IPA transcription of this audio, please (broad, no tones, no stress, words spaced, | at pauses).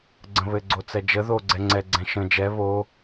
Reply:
ɡ͡ǀə̃βɘɡ͡ǀo t͡sɛd͡ʒə ðo ɡ͡ǀɛŋ͡ǀɛɡ͡ǀɛ̃ ʃə̃ d͡ʒɛ βo